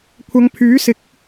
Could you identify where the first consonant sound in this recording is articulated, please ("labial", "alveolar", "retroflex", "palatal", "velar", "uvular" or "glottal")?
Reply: velar